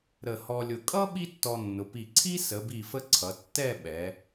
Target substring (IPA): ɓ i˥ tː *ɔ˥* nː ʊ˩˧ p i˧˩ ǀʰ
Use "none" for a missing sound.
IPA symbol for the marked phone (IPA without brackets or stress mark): ɔ˧